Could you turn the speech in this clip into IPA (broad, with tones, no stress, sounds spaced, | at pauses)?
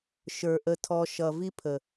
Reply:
ʃ ə˞˨ ʔ ə˧ tʰ ɔ˧ ʃ ʌ˨ v i˦ pʰ ə˨